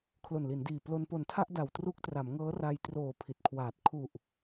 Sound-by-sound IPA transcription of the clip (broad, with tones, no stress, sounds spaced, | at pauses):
kʰ l o˨˩ n l i˩˦ n d iː˨˩ p l o˧ n p o˨˩ n tʰ a˥˩ ʔ d a˨˩ w t r u˦˥ k̚ t r a˩˦ m ŋ ɤː˦˥ r a˧ j t r oː˨˩ pʰ i˨˩ t̚ kʰ w aː˨˩ t̚ kʰ u˨˩ ʔ